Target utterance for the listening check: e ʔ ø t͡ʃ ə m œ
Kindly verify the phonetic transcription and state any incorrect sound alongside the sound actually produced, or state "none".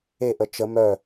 ø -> ə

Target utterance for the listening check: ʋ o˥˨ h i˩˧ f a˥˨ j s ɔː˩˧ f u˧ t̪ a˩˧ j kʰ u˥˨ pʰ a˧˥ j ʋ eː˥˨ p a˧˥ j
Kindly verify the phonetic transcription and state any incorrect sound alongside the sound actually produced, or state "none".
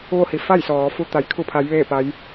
none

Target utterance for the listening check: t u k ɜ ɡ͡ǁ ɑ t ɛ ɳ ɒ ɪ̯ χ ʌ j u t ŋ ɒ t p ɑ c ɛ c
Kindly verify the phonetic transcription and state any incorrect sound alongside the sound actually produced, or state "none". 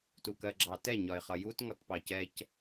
ɳ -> ɲ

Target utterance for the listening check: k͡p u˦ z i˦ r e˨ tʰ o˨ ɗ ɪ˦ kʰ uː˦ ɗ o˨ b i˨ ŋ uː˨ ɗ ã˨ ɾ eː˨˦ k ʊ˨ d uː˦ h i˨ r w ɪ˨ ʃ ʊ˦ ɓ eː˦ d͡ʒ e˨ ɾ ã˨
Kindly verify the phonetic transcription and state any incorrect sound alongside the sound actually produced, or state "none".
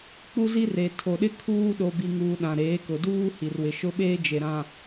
none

